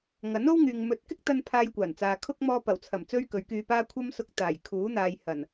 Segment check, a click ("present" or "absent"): absent